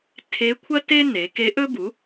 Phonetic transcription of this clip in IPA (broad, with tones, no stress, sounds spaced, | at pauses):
tʰ e˧˥ kʷʰ ɐ˥ t e˥ n e˩˧ k e˧˥ ʔ ɵ˥ b u˩˥